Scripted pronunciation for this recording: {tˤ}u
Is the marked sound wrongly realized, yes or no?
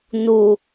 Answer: yes